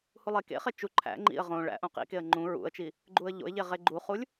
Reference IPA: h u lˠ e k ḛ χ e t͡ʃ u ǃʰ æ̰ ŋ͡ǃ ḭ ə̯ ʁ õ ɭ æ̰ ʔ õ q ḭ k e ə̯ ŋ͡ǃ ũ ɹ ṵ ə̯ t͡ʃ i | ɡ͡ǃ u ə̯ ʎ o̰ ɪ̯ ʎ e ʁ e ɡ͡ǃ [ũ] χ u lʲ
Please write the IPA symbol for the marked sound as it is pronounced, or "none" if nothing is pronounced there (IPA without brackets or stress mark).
u